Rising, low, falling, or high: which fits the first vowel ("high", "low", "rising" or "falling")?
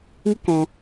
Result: high